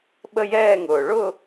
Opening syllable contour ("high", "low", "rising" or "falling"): falling